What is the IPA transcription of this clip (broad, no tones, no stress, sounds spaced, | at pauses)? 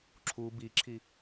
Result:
ǁʰ u b i ǁʰ i